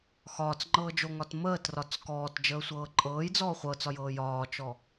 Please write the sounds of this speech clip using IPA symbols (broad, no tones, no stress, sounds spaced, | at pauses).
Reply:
x ɒː t͡s ŋ͡ǃ ɤː d͡ʒ o ŋ ɒ t m əː t r ɒ t͡s k ɔː t d͡ʒ əː sʷ ɤː ǃʼ ɤː j d͡z ɔː χʷ ɤ t͡s ɒ j ɤː j ɒː t͡ʃ ɔ